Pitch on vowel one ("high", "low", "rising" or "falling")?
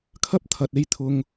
high